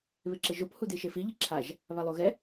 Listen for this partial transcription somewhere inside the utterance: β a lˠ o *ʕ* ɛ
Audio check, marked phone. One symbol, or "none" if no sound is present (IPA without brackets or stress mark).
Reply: ɣ